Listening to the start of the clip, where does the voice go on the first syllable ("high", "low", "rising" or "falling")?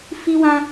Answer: high